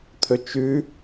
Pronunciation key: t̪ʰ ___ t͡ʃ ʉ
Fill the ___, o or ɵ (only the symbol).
ɵ